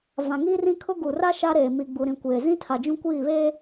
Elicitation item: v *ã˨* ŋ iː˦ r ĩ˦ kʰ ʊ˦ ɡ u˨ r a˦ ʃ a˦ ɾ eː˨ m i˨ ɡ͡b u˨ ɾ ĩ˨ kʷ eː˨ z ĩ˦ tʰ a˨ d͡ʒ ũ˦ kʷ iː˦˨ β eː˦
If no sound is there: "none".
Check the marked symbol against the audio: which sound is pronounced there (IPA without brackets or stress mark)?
ã˨